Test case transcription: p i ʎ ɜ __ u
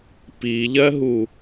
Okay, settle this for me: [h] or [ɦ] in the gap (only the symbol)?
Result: ɦ